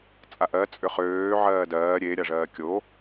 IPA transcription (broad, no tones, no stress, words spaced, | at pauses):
t͡sʼaʔɜ t͡sʼʏχøː ʕɜːdɜː ɾʲe ɾʲaʐɜːkʲo